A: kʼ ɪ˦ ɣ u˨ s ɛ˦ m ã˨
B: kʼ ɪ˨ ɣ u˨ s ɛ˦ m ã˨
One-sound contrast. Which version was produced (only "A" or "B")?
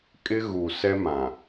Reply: A